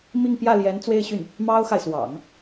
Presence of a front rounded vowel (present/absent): present